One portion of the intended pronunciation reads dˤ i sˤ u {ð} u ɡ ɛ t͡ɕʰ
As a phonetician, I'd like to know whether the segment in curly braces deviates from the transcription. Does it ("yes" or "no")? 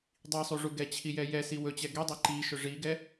yes